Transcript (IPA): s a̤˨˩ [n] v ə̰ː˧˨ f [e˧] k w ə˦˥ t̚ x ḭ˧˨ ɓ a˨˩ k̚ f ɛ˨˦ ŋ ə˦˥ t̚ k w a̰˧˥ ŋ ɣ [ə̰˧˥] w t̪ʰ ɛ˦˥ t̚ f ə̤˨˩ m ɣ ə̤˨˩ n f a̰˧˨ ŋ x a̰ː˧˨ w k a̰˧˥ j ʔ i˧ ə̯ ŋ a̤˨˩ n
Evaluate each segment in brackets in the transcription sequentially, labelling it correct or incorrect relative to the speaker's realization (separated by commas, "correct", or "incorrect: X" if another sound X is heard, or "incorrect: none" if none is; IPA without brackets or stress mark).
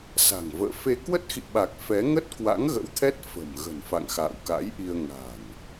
incorrect: ŋ, correct, correct